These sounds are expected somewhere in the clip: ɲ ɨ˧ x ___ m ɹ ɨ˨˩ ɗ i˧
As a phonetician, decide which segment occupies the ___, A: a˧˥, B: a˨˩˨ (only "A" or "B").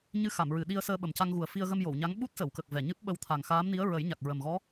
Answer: B